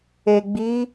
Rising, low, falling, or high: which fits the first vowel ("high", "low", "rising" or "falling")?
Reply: low